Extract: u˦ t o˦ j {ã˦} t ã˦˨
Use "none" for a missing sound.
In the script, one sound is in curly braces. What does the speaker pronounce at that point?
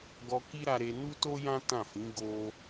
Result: ã˦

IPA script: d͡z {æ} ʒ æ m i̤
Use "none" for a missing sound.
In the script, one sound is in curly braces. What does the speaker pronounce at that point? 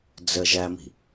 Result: ə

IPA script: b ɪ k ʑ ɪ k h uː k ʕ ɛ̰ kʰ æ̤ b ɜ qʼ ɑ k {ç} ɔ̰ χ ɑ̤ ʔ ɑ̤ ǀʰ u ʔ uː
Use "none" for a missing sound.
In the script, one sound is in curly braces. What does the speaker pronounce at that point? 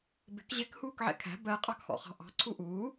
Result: x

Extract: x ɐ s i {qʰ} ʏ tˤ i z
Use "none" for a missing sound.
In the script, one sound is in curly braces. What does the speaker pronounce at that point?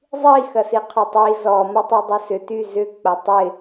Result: qʰ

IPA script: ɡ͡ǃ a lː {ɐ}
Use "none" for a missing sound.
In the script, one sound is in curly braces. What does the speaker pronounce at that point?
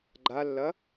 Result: ɐ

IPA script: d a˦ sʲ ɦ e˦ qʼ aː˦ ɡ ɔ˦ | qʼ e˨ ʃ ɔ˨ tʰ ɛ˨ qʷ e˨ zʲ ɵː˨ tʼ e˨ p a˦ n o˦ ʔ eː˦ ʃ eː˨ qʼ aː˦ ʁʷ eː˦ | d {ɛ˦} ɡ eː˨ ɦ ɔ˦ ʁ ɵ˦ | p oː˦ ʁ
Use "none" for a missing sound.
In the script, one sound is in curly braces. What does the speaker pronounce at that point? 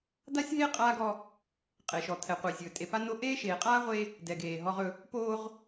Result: ɛ˨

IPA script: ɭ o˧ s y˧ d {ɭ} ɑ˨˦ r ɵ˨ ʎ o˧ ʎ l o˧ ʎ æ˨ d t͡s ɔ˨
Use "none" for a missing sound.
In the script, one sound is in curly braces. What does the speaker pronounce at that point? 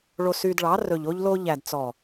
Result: ɭ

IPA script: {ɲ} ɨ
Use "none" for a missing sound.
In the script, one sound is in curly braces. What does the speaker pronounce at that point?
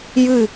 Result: j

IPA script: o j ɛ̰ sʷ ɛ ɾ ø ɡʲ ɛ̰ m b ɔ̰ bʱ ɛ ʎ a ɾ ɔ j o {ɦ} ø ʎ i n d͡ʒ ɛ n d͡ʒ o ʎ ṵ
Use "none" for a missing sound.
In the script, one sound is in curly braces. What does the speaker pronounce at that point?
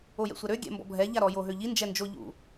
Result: ɦ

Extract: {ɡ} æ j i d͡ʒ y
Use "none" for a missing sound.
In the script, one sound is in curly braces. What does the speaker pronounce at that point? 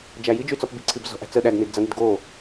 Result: d͡ʒ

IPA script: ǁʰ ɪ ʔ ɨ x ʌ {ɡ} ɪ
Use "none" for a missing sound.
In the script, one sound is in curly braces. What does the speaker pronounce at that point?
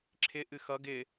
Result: ɡ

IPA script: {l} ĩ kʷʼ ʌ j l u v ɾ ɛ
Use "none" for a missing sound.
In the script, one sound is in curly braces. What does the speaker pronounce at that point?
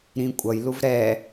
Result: ɾ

